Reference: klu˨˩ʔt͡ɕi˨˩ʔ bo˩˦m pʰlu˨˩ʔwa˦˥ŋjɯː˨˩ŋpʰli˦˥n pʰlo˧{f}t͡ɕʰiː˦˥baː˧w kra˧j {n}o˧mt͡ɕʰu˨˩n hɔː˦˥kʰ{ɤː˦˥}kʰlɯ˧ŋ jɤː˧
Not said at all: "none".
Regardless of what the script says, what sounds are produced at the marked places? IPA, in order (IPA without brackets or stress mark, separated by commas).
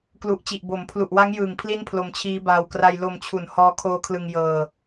m, l, oː˦˥